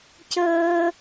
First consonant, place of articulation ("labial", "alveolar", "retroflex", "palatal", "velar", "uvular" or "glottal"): palatal